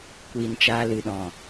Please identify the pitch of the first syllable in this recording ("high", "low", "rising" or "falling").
low